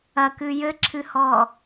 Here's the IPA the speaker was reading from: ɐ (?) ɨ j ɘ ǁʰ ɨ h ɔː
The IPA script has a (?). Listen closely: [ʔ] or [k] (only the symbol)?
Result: k